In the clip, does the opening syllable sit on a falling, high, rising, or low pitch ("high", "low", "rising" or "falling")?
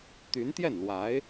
rising